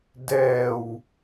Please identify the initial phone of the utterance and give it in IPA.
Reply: d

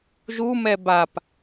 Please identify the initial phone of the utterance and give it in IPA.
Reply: ʒ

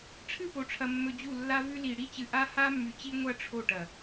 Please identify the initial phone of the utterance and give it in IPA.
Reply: ʈ͡ʂʰ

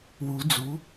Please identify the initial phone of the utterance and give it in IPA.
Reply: w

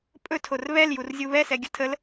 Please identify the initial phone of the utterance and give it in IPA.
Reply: pʼ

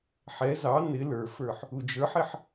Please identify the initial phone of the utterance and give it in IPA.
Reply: ħ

